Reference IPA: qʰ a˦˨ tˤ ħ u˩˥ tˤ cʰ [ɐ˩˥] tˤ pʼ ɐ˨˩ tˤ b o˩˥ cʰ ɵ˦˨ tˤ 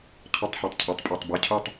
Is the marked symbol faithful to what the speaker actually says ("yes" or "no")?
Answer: yes